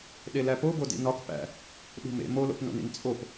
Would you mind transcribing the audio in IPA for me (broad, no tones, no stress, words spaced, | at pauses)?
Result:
ɗelæpobo dḭnɒk pæ̰ | ɗṳmḛ molo̰pno̰nḭn t͡sʼop